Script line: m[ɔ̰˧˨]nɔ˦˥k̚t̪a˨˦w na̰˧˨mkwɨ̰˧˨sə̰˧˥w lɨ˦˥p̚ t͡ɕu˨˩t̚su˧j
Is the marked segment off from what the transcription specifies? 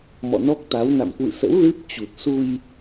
no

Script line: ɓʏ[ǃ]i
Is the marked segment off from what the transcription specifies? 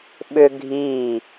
yes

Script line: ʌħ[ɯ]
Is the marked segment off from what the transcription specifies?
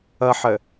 yes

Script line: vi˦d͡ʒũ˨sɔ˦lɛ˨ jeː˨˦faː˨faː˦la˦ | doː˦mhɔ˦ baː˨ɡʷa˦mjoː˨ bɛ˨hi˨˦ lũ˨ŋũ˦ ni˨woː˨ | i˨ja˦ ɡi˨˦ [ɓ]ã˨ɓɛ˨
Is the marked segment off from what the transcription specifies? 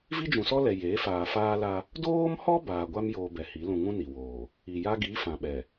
yes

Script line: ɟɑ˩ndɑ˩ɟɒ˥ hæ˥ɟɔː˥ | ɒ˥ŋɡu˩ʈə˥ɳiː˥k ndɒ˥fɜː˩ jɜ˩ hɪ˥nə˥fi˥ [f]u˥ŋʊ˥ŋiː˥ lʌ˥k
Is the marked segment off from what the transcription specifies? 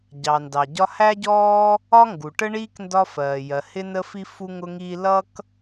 no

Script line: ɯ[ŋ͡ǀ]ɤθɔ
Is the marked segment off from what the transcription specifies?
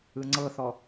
no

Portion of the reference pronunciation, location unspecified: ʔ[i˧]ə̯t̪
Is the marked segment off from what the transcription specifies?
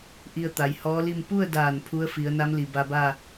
no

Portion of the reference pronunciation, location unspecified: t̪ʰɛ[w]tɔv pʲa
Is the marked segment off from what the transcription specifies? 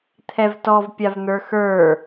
yes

